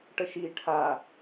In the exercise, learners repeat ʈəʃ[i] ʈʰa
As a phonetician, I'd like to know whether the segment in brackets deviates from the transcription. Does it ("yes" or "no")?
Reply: no